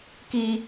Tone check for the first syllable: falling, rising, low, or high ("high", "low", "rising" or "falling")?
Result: high